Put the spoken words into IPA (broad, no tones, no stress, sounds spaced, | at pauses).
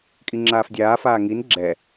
kʼ i ŋ͡ǁ aː f dʲ aː f aː ŋ i n ɡ͡ǁ ɛ